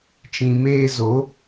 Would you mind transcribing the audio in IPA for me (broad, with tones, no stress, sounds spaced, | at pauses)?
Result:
t͡ʃ ĩ˨ m eː˧ z o˨˦